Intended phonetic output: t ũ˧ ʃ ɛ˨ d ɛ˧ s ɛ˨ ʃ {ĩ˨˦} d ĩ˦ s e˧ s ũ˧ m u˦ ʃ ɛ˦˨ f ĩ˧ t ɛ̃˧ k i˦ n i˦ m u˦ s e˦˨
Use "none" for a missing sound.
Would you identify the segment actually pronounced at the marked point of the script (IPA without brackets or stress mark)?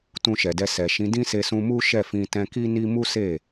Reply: ĩ˨˦